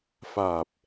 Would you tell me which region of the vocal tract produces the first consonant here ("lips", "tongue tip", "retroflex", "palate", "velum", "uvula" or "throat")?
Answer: lips